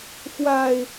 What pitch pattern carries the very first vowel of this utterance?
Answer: low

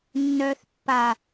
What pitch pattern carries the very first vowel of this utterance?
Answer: low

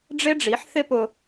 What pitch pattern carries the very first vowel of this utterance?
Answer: high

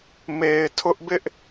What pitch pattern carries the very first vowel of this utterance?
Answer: low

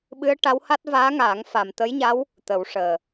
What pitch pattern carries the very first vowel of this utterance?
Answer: rising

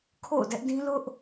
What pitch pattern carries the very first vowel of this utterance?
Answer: falling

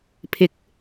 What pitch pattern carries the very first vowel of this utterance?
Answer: rising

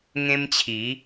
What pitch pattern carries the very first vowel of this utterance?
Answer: high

